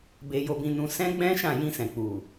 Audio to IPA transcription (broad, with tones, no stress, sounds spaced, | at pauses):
b e˧ j o˧ b ĩ˧ n ũ˧ s ɛ̃˦ ɡ͡b ɛ̃˦ ʃ ã˦˨ j ĩ˧ s ɛ̃˨ k͡p u˨